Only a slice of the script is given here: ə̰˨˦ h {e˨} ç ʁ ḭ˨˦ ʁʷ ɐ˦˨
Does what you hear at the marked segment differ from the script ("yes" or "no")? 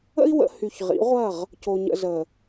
yes